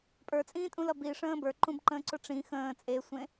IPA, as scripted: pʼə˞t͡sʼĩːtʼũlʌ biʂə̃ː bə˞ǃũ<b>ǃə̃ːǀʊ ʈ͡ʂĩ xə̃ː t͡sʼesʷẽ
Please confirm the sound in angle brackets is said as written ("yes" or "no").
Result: yes